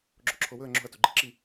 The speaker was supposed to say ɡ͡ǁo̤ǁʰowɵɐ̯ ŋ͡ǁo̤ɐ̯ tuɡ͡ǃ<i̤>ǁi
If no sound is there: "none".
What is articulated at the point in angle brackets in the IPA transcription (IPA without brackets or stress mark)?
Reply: i̤